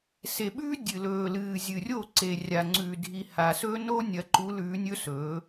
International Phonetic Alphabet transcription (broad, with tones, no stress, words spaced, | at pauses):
se˨ɓʉː˦ dʲɨ˨lɵː˨lɨː˨ zʲɨ˨rʲo˦˨ ǀe˨rʲa˨ŋ͡ǀʉː˨dʱi˨ ha˨sɵ˦no˦ nʲɐ˨˦ǃu˨˦lʉː˨˦ nʲɵ˦sɵː˨˦